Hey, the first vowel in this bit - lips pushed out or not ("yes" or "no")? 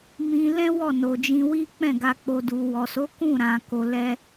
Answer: no